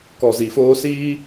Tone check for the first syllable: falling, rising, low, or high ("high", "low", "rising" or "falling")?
low